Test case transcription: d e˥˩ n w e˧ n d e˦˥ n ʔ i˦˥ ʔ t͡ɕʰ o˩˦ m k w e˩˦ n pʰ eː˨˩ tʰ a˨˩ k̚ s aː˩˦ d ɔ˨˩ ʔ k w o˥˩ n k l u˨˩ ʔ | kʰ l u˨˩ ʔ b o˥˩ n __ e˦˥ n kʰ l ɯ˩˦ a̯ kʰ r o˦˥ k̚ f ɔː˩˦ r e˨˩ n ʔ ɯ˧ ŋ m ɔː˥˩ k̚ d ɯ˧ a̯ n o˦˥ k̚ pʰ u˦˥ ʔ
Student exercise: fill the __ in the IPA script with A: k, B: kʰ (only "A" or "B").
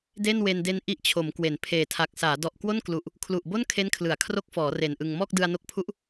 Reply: B